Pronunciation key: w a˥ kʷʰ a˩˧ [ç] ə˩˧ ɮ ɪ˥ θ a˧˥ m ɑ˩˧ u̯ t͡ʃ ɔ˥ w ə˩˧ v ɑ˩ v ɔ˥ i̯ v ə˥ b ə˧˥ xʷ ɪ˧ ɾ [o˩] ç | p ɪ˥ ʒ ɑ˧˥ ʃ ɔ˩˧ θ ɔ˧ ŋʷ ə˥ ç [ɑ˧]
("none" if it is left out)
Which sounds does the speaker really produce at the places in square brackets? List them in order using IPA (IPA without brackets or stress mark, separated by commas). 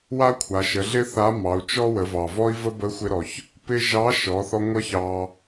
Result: ʃ, ɔ˩, ɑ˧